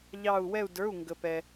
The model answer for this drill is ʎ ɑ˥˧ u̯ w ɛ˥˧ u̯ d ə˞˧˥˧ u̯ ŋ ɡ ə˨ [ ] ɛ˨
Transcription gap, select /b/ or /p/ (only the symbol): p